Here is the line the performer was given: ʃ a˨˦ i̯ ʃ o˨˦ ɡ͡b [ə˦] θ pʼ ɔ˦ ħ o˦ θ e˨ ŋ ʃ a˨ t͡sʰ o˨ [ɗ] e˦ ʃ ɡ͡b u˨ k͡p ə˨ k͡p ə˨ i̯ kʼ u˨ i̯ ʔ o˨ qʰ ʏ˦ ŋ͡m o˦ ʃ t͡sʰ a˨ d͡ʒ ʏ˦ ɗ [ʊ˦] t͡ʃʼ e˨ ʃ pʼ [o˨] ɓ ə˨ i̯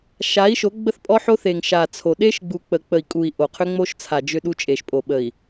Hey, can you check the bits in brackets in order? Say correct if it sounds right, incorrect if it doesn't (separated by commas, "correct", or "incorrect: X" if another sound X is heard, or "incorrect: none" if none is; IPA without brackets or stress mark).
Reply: correct, correct, incorrect: u˦, correct